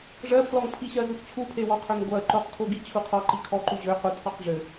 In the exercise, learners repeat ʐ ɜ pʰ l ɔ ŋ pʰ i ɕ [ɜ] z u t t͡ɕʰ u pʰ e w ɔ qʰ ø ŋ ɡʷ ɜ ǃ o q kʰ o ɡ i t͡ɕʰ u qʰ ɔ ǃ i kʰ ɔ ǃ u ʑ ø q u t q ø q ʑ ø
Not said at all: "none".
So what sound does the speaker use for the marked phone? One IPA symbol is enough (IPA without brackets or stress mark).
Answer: ɜ